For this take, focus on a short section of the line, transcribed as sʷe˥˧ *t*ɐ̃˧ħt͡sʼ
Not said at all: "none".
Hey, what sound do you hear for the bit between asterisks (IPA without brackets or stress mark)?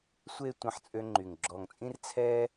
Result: tʷ